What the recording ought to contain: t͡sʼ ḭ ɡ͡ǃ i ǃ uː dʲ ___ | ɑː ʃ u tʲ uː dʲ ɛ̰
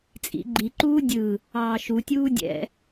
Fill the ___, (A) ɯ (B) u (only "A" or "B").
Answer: A